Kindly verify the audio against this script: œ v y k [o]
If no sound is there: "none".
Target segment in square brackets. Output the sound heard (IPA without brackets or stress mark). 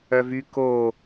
o